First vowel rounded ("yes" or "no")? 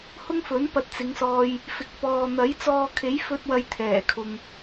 yes